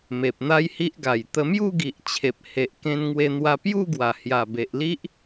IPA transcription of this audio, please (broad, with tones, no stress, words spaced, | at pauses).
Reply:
me˨p̚n̪a˦jhi˦ʔɡa˨˩j t̪ə˧mju˥˧ɡi˨ʔt͡ɕʰe˨p̚ he˨ʔ kẽ˧nŋwe˧n̪wa˧ pju˥˧ɡwa˨˩hja˨˩ be˨ʔli˦ʔ